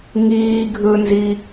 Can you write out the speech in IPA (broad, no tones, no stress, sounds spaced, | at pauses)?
ŋ iː ɡʱ ɯ n z i